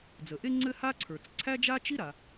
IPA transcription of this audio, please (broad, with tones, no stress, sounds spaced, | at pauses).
d͡z ə˩ ʔ e˥ ŋ͡ǀ ɘ˥ h a˥ ǀʰ ə˞˩ t͡s ǀʰ æ˥ d͡ʒ a˥ t͡ʃ i˥ ɾ a˩